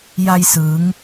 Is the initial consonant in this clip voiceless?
no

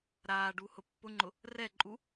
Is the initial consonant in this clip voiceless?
no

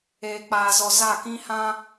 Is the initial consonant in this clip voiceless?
yes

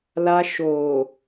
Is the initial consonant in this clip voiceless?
no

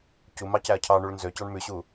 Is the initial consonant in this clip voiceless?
yes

